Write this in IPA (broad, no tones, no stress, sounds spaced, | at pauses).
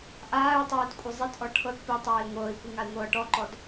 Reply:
ʔ aː y̯ tˤ eː t kʷʼ i zˤ e t ʔ ɔ ʈʰ ɤ t p i tˤ eː i̯ ŋʷ ɤː i̯ kʷ ɯ ŋ a i̯ ŋʷ ɤː ʈ ɔ ǃ ɔ d